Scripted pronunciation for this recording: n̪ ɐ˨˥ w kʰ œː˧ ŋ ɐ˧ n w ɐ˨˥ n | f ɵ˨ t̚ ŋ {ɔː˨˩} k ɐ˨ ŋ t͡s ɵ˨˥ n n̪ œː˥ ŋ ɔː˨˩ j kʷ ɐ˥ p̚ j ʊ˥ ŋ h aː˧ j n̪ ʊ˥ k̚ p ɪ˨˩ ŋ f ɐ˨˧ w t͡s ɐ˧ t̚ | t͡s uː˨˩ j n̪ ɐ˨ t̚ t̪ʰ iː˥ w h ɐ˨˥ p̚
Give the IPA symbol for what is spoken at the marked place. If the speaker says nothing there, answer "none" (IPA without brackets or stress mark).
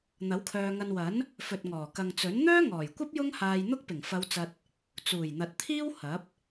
ɔː˨˩